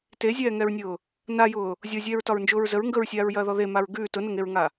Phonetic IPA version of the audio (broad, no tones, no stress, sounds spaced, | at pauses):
t e zʲ ɛː ŋ ɛ ɹ nʲ ʊː | n a j ʊː | zʲ ɔ zʲ ɛː ɹ t ɒ ɹ n d͡ʒ ʊː ɹ z ə ɹ ŋ ɡ ə ɹ sʲ aː ɹ j ɐː ð ɔ ð e m a ɹ ɡ ʉː t ʊ n ʊ ŋ e ɹ ŋ a